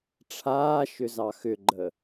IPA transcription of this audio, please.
ʈ͡ʂʰ aː ʃ ʏ z ɑ x ʏ ɡ͡ǃ ə

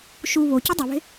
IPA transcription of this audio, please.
ʃ u β o c i dˤ i β e̤

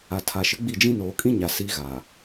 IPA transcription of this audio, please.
a˨ tʰ a˨ ʃ ɪ˨˦ ɡ͡b i˦˨ d͡ʒ ĩ˦ n oː˨ kʼ ĩ˦ ɲ a˨ s i˦ ɣ a˨

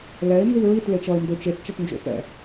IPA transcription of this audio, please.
l ɛ ɪ̯ n z i ɹ i t l e t͡ʃ ʌ ɪ̯ n d e t͡ʃ e t t͡ʃ ʌ t n d͡ʒ o̰ f ɛ̰

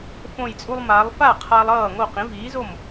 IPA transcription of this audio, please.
f õ˧˩ j t͡sʼ u˧ lˠ m a˩˧ lˠ f a˥˩ qʰ a˧ lˠ ʌː˥˩ ŋ o˥˩ q ĩ˩˥ v iː˩˥ z o˥˩ m

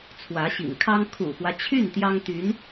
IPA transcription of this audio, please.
t͡sʰ w ä˧˥ ɕ ḭ˨˩ ŋ kʰ ɑ˥ ŋ kʰ ṵ˨˩ x w ä˦ t͡ɕʰ y˥˩ n t̪ j ɑ˥ ŋ t̪ y˧˥ n

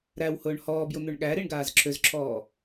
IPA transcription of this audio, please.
ɾ æ w h ʊː ɳ h ɔː b j ʊ n̪ ø ɳ ɠ æ ɾ i ɳ ɡ aː z ǁʰ ø z ǁʰ ɔː

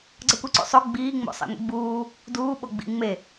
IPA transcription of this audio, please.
ɡ͡ǀ ʌ kʷ i ǀ ṵ sˤ o ɡ͡b iː ŋ͡m o̰ sˤ ḭ ŋʷ ḭ ɡ͡b uː | d uː ɓ o ɡ͡b ḭ ŋ͡m e

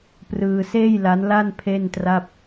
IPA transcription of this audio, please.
p r ɯː˧ s eː˥˩ j l a˦˥ n l a˥˩ n pʰ e˥˩ n t r a˥˩ p̚

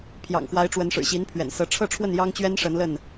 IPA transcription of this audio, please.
pʰ j ɑ̰˨˩ ŋ x w a˨˦ ɪ̯ ʈ͡ʂ w ə˨˦ n ʂ ɻ̩˨˩ ɕ i˨˦ n pʰ ɥ ɛ̰˨˩ n s ɤ˨˦ ʈ͡ʂʰ ɤ˥˨ ʈ͡ʂʰ w ə˥˨ n j ɑ˦ ŋ t͡ɕ ɥ ɛ˦ n ʂ ə˨˦ n l ə˥˨ n

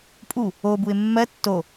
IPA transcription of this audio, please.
pʼ u | o b u ɪ̯ mː ɜ tː o

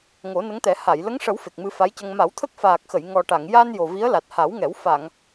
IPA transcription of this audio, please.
ŋ o˨˩˦ n ə˧˥ ŋ t̪ ɛ˨˩˦ h a˨˩˨ j l ə˧˥ ŋ ʂ ə˨˩˦ w f e˨˩ k̚ m ɨ˧ f a˧˥ j c ə˧ ŋ m a˨˩˦ w t̪ʰ ə˦˥ k̚ f aː˨˩ k̚ x ə˨˩˨ j ŋ ɔ˨˩ ʈ a˨˩˨ ŋ j a˧ n j o˨˩ v i˧˥ ə̯ l a˨˩ t̚ h a˨˩˦ w ŋ ɛ˨˩˦ w f a˨˩˨ ŋ

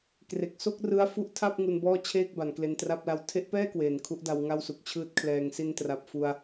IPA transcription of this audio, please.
k r e˨˩ k̚ s o˥˩ k̚ r ɯ˦˥ a̯ f u˦˥ ʔ tʰ a˥˩ p̚ ŋ u˧ n b ɔː˥˩ t͡ɕʰ eː˥˩ k̚ b a˩˦ n k l e˧ n t r a˥˩ p̚ l a˦˥ w tʰ e˦˥ ʔ p ɛː˥˩ k w eː˩˦ n kʰ u˦˥ ʔ d a˧ w ŋ a˥˩ w s u˨˩ k̚ t͡ɕʰ ɯː˥˩ t̚ kʰ l ɛː˧ ŋ s i˧ n t r a˨˩ p̚ f u˧ a̯

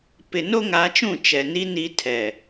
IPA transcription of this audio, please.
p ɪ˨ n o˦ ŋ a˨˦ t͡ʃ ũ˦˨ t͡ʃ ɛ˨ n i˦ n i˦ tʰ ɛ˨

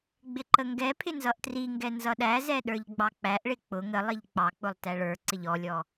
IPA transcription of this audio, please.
ɡ͡b ɪ ǃ ə ŋ ɡ ɛ pʰ ɪ n z ʌ ʔ t r i ŋ ɡ ɛ n z ʌ ɗ æ z ɛ ɗ ə˞ ʎ ɡ͡b ɑ k͡p æ ʔ ɭ ɪ k͡p ʊ ŋ ə lˠ i ʎ k͡p ɑ k͡p ʊ lˠ t æ ɭ ə˞ ǀ ɪ ʎ ɔ lʲ ɔ

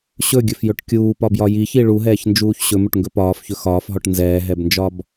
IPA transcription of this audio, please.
ɕ ɵ ɡʲ ɵ f j ɵ ʈ kʲ uː p ɒ b j ɒ j i ç i ɭ u ɦ ɛː ç n d͡ʒ uː ç ɕ ɵ m ɵ ʈ ŋ ɡ ɵ p ɒː f ç ɵ x ɒː f ɦ ɔ ʈ n z ɛː ɦ ɛ b n d͡ʒ ɒ b

